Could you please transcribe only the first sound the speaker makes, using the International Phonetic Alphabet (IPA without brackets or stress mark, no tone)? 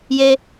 j